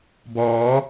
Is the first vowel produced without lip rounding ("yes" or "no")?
no